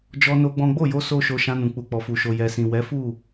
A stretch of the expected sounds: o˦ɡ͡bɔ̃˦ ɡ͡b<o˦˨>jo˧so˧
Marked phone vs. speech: correct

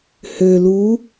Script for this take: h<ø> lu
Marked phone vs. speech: correct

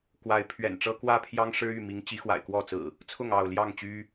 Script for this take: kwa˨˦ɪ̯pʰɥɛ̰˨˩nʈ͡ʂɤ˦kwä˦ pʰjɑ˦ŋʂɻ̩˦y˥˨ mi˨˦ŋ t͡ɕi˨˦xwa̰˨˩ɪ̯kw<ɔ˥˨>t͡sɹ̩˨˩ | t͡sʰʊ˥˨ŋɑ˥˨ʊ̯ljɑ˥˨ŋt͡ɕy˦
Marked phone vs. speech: correct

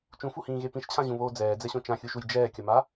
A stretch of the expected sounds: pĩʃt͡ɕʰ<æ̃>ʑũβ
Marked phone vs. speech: incorrect: ã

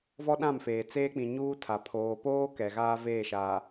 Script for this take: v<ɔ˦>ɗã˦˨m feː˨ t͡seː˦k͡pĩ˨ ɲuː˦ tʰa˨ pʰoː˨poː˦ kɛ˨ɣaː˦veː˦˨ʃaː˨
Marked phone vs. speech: correct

